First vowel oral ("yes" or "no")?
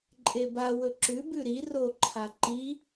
yes